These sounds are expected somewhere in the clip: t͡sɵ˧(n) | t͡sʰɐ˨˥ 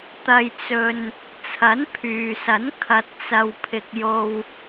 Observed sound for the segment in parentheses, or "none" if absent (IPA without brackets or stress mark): n